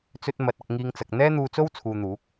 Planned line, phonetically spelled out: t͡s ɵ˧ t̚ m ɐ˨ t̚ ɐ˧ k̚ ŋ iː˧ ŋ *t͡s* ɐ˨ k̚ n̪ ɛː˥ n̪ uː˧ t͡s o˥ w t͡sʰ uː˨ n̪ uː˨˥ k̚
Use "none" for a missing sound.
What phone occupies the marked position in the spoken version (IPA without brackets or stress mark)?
t͡s